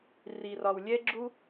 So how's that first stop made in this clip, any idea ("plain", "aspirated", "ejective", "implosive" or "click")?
click